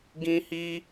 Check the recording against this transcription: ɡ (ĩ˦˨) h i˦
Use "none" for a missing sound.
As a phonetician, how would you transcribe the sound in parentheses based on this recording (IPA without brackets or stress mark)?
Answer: ĩ˦